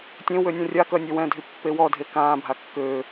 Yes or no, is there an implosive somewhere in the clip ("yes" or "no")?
no